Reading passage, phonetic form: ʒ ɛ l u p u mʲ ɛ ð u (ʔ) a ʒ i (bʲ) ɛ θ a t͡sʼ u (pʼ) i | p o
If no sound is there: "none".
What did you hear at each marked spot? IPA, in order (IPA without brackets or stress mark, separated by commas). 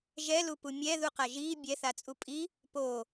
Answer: q, bʲ, pʼ